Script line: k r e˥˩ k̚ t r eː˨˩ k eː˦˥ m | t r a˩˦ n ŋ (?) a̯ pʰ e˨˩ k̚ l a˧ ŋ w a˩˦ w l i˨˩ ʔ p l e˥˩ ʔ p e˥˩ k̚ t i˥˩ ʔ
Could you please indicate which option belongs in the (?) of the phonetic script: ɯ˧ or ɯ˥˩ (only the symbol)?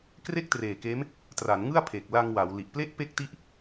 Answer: ɯ˥˩